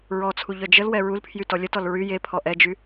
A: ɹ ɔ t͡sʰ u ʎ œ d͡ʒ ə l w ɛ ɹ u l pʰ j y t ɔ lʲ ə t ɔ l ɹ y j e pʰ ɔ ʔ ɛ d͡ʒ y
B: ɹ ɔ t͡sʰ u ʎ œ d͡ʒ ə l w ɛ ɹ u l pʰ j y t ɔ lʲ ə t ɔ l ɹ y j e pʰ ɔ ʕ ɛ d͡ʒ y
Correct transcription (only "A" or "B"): A